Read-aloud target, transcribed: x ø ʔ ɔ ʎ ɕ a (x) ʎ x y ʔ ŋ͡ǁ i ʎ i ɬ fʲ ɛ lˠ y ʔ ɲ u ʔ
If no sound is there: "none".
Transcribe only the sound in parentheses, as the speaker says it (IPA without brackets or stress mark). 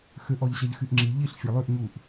none